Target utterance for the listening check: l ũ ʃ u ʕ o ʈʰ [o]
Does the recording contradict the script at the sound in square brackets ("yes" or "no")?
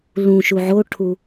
yes